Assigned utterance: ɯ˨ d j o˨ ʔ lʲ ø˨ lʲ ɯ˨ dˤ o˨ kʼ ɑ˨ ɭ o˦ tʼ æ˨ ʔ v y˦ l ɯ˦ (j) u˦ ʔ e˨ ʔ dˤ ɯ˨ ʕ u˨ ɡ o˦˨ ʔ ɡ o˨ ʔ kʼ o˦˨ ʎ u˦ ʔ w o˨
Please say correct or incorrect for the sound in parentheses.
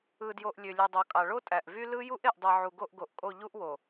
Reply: correct